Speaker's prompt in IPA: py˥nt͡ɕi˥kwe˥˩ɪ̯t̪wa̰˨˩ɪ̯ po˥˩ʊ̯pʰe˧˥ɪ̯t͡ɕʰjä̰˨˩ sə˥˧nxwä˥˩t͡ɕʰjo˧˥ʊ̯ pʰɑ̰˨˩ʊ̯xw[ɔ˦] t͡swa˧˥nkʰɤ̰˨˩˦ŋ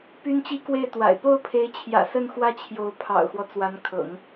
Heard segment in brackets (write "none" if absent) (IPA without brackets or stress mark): ɔ˦